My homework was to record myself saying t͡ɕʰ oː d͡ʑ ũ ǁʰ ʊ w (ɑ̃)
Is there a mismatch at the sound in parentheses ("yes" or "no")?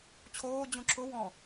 yes